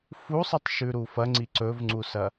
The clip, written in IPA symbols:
f u sˤ ɨ tˤ ʃ ʉ ɾ u f ɐ ŋ͡ǀ i ǀ ɵ v ŋ͡ǀ u s ɐ

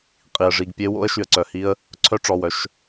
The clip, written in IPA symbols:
qʼ i˩ ə̯ ʐ i˩˧˩ ɡ pʲ e˦˥ w o̰˦˥ ə̯ ʃ y˩ ə̯ ǀ œ˩˧˩ h i˧ ə̯ | ǀʰ œ˦˥ ʈ͡ʂ ɔ˩˧˩ w œ˧ ʃ

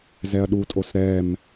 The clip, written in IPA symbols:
z ɛ ɐ̯ ɗ u tʼ o s ɾ ɛ m

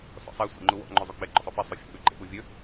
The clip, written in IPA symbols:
s ɔ̰ sˤ ɛ sʷ ḛ ŋ͡ǃ u w ɔ̰ ŋ͡ǃ ø zˤ u ɡ͡b ɛ ɡ͡ǃ ʏ sˤ ɵ f ɛ sˤ ø fʲ ɔ̰ ɡ͡b ø ɡ͡ǃ ḛ ɓ u vʲ ɵ

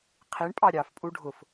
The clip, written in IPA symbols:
qʰ i ɳ pʼ ɑ ɾʲ ɑ f pʼ u ɖʱ ʊ f

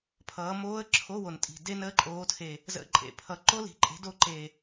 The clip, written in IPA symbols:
pʰ ʌː˨˦ m oː˦˥ ə̯ ǁʰ o˧˥˧ w o˨˩ n tʼ i̤˨˩ d e˦˥ n əː˦˥ ǃʼ oː˨˦ tʰ e˨˩ | z ə̰˧˥˧ ǃʼ ḛ˨˩ pʰ ʌ˨˩ ǃ o˦˥ l i̤˨˦ ǃʼ e̤˨˦ d o˨˦ ǃ e˨˩

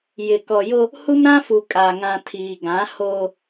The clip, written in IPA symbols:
j ɪ˨ k ɔ˨ j o˦ | h u˦ m ɾ ã˦ f u˨ kʼ a˨ ŋ ã˨ tʰ iː˨ ɡ ã˨˦ h oː˦

